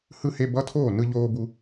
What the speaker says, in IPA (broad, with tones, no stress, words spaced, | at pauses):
hɯ˧he˧ bʌ˧˥˧tʰoː˥˩ nɯ˧ʎoː˧bu˧